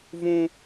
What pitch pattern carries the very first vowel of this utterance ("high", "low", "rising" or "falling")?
high